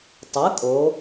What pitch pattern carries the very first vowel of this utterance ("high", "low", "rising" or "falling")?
rising